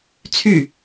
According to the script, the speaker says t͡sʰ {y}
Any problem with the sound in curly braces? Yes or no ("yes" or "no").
no